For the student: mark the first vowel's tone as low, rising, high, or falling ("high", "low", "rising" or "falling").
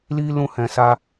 high